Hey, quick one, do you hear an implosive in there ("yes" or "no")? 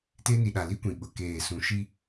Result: yes